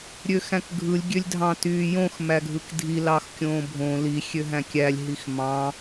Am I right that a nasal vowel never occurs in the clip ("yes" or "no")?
no